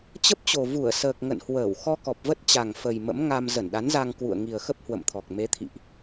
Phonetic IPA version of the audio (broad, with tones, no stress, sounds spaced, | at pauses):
t͡ɕ ə˦˥ p̚ t͡ɕ o˨˩ v u˧˩ ə̯ s əː˨˩ k̚ ŋ ə̰˧˨ n h w əː˧˩ w x ɔ˧ k ɔ˨˩ p̚ v ə˦˥ t̚ t͡ɕ a˨˩ ŋ f ə˨˩ j m ə̰˧˥ m ŋ a˧ m z ə˧˩ n ɗ a˨˦ n z a˧ ŋ k w ṵ˧˨ ə̯ ŋ i˨˩ ə̯ x ə˦˥ p̚ h w ə̰˧˨ m t̪ʰ ɔ˨˩ k̚ m e˨˦ t̪ʰ ḭ˧˨ ʔ